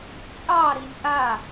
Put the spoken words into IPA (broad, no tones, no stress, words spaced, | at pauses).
t͡ʃʼɑɾinʲ ʔa